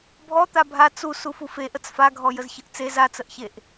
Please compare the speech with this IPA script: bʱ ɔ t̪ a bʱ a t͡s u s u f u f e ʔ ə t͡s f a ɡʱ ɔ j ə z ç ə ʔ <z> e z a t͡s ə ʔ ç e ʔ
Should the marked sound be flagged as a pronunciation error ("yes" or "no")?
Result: yes